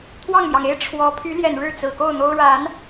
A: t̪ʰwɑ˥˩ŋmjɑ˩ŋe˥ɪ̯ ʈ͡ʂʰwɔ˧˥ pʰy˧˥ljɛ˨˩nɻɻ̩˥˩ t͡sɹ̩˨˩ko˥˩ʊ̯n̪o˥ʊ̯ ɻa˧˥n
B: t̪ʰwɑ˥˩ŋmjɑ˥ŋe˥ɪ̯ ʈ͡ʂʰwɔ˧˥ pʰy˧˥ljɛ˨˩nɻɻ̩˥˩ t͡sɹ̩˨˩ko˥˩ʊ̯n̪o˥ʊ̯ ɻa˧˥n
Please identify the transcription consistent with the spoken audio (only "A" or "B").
A